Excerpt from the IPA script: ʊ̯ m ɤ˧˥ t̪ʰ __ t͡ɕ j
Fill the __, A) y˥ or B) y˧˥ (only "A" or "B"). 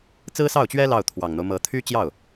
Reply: A